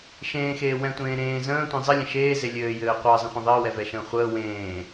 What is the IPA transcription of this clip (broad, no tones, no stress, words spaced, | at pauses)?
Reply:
ʃẽːxeː wɛ̃tʷẽː ɾẽː zə̃ːtʷẽ zˤɘlʲə̃ ʃeːze lʲɘːjɘː qʷəːzˤə̃χʷẽ ðˤəːwɛvɛʃə̃ː χʷəː wẽː